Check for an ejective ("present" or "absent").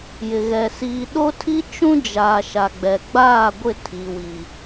absent